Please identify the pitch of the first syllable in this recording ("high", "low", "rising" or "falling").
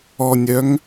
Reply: low